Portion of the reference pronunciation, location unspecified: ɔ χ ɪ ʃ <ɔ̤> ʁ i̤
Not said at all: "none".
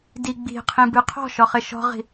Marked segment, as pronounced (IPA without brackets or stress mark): ɔ̤